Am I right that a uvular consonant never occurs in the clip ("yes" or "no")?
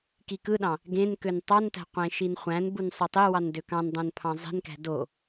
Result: no